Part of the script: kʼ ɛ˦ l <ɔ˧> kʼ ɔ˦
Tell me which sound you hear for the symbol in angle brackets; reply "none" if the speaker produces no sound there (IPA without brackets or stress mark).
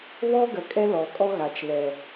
ɔ˨